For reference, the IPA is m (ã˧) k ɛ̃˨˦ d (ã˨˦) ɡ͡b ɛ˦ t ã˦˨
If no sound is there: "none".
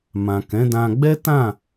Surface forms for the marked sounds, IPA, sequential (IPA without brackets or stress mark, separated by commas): ã˨, ã˧